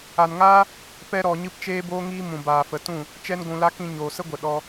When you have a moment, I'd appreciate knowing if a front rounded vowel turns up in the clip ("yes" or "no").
no